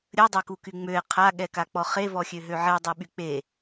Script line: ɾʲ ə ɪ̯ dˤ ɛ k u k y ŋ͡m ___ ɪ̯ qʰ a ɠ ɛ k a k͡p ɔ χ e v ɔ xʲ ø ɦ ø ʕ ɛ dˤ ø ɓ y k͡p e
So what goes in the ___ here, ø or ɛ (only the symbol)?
ø